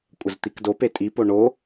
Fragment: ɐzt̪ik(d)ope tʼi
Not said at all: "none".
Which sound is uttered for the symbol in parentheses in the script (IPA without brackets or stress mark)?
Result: d